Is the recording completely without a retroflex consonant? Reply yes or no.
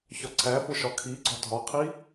yes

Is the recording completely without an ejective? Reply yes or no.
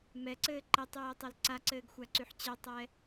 yes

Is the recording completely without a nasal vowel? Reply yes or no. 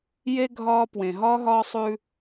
no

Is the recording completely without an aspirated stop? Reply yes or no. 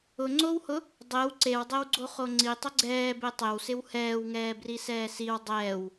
yes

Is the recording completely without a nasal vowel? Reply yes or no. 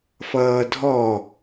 yes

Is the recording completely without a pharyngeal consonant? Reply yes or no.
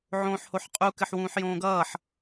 no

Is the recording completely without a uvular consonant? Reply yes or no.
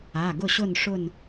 yes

